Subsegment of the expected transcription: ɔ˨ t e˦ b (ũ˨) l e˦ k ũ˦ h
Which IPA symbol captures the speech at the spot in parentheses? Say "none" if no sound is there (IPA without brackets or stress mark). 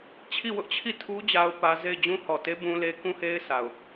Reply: ũ˦